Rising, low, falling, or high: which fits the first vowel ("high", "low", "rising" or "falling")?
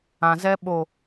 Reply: low